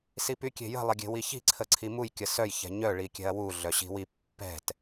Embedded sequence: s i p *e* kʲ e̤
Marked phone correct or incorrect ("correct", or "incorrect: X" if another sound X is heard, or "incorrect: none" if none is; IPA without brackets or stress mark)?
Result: incorrect: y